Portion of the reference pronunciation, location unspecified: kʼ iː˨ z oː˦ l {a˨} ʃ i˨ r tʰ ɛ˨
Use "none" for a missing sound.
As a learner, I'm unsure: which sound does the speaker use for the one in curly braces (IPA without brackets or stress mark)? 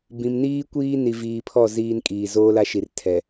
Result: a˦